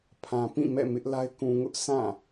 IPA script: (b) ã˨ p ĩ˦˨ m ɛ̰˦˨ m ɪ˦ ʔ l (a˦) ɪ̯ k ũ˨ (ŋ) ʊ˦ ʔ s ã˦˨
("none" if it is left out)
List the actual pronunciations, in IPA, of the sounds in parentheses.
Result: pʰ, a˦, ŋ

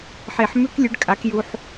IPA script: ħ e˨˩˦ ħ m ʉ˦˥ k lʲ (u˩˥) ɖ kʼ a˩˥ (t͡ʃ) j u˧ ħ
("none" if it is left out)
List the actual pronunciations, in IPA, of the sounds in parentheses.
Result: ʉ˩˥, k

